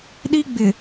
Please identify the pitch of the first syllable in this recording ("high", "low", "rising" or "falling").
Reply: high